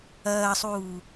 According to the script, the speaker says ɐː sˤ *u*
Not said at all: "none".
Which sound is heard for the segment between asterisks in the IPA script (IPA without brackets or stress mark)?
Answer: uː